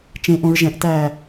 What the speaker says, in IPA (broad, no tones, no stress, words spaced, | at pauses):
t͡ʃẽʔõɹ ʒɛ̃ʔtæː